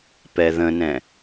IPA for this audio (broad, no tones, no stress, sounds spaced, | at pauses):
p ɛ ð ə̃ n ɛ̃